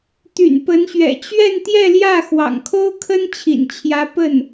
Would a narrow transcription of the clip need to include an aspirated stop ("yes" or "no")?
yes